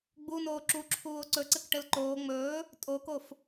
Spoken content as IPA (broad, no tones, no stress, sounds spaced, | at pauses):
ɡ͡b u n oː ǁ u ǁʰ uː o̯ ǀ ɵ ǀ ɘ k ʈ ɘ l ǃ oː ŋ͡m ɵː | tʼ o k o f